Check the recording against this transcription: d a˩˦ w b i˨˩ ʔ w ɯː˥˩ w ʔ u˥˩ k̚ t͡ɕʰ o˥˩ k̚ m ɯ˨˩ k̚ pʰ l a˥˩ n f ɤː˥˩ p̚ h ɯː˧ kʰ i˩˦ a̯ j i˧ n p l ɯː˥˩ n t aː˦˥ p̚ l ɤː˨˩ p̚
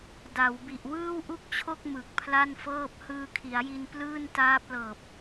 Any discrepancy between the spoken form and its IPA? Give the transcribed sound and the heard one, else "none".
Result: none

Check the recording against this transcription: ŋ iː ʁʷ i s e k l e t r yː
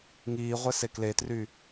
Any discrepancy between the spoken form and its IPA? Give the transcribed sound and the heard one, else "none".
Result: i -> e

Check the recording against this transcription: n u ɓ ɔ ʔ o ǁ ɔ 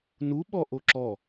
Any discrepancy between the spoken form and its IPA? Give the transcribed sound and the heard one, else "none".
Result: none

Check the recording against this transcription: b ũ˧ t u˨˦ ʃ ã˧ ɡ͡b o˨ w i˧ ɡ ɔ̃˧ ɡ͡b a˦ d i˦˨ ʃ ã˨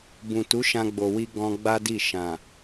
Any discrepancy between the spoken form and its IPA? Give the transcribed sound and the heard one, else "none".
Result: ũ˧ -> ũ˨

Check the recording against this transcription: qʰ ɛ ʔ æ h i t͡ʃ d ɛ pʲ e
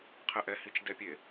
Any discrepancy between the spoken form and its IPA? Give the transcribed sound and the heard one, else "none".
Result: æ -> ɛ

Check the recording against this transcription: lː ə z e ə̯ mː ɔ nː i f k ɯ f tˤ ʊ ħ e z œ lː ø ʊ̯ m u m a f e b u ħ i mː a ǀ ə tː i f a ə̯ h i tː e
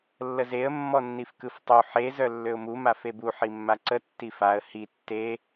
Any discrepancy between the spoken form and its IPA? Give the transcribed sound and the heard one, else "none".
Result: ʊ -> u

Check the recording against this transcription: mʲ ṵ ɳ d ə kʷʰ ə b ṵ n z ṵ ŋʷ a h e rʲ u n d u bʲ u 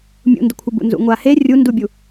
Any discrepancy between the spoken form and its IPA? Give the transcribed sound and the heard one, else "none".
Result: ɳ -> n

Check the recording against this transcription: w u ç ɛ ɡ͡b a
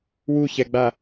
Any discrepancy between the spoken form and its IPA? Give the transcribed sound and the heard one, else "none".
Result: none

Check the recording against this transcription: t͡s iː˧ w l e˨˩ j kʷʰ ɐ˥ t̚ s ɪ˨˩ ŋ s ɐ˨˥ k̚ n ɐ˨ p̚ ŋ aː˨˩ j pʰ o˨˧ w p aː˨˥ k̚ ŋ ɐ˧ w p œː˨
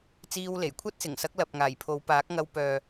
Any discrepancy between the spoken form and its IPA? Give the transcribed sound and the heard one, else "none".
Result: n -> l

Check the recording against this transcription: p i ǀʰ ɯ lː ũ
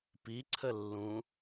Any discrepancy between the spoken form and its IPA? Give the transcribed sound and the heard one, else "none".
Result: ɯ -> ə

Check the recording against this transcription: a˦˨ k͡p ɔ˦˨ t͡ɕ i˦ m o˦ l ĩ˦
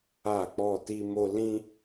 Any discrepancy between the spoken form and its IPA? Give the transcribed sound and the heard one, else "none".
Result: t͡ɕ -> t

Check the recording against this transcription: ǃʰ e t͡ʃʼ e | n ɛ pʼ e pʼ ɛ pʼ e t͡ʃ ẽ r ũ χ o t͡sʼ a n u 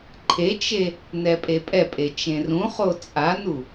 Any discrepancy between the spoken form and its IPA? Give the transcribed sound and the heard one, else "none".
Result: t͡ʃʼ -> t͡ʃ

